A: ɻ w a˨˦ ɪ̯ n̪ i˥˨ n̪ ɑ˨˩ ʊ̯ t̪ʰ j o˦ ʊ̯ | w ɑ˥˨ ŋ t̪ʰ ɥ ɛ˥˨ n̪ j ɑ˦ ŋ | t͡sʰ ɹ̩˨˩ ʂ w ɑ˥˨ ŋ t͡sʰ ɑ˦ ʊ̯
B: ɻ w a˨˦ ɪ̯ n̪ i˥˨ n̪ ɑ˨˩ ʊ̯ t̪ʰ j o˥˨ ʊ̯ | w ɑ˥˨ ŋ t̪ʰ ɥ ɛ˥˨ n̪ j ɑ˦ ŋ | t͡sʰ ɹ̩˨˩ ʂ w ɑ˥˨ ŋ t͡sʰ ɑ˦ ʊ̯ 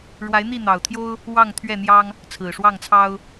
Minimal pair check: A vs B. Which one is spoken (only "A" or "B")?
A